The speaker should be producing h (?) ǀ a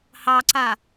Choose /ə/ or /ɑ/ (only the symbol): ɑ